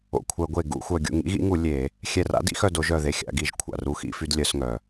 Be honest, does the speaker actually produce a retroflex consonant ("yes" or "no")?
no